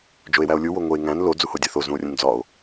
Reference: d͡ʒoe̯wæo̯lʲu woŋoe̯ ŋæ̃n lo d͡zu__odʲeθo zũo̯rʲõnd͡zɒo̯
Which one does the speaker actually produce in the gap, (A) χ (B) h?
B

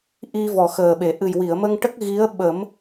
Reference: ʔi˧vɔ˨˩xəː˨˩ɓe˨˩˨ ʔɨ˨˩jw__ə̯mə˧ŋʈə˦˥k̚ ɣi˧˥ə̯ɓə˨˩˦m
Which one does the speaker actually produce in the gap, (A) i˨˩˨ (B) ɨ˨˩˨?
A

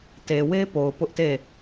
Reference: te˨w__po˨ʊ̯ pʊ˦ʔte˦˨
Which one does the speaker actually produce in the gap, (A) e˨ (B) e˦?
B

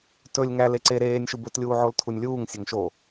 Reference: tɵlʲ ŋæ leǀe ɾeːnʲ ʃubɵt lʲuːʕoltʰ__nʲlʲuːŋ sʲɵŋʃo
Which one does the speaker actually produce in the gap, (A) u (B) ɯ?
A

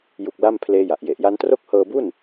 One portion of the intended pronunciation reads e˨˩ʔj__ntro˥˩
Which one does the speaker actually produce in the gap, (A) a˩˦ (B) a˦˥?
B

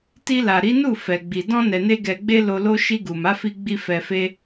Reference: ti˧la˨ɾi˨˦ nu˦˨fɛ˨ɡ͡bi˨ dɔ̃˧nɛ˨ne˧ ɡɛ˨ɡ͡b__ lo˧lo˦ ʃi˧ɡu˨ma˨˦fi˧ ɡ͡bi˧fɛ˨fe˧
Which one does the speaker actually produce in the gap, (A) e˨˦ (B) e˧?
B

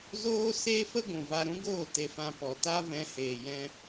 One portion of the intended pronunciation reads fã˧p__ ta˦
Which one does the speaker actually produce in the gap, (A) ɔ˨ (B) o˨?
A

